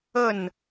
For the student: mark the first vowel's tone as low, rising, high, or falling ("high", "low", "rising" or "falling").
falling